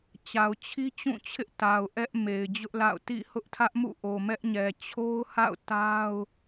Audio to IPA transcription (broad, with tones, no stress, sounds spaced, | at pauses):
t͡ɕ a˨ ʊ̯ t͡ɕʰ i˦ t͡ɕ ũ˦˨ t͡ɕʰ ɪ˦ ʔ t a˨ ʊ̯ ʔ ɛ˦ ʔ m e˨ ɪ̯ d͡ʑ ʊ˦ ʔ l a̰˦˨ ʊ̯ t ḭ˦˨ h ʊ˦ ʔ tʰ ä˦ ʔ m ṵ˦˨ ʔ o˨ m ɛ˦ ʔ ɲ ɛ˨ t͡ɕʰ o˦ ʊ̯ h a̰˦˨ ʊ̯ t a˦ ʊ̯